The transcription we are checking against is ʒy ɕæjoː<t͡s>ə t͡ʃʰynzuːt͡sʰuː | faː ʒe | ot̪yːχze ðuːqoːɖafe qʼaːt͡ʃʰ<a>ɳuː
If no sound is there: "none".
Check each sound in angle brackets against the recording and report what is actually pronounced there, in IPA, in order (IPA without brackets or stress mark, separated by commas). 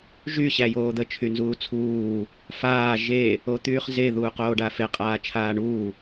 d̪, aː